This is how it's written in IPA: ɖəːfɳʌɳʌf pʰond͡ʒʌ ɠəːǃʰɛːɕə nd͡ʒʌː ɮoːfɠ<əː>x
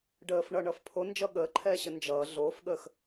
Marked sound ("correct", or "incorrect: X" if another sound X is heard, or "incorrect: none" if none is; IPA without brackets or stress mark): correct